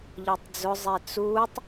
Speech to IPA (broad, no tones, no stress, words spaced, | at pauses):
ʎɔtˤd͡zʊ zˤet͡sutˤ